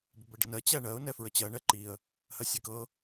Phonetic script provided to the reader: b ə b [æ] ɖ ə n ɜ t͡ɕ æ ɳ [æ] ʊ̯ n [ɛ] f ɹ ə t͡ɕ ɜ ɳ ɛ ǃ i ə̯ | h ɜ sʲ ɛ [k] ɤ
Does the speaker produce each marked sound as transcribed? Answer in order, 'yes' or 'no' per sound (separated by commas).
no, no, yes, yes